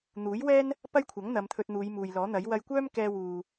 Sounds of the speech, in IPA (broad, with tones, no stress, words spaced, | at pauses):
n̪uː˨˥jwɛː˥n | pɐ˥jkʷʰɐ˨˥ŋ n̪ɐ˨˧mt̪ʰɵ˧t̚n̪uː˨˧j muː˨jlɔː˨˥n̪ɐ˨˥j wɐ˧jkʷœː˥m kɛː˧wuː˨